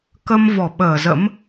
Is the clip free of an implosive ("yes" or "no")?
no